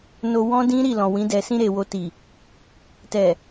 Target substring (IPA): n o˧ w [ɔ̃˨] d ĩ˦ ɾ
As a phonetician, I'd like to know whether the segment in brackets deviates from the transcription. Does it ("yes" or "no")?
yes